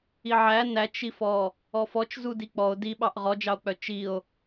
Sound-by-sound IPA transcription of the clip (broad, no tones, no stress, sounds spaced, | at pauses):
i ʕ æ n æ t͡ʃ i f ɔ | ɔ f ɔ t͡ʃ z u d i k͡p ɔ o̯ d i ɓ ɑ ʔ ʁ ɔ d͡ʒ ɑ o̯ k͡p œ t͡ʃ i o̯